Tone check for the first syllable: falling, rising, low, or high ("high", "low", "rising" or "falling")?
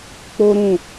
high